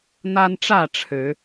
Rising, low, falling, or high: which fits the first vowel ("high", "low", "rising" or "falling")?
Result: high